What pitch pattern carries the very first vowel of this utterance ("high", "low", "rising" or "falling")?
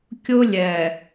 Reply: high